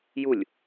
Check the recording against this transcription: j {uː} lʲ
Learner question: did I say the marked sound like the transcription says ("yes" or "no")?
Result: no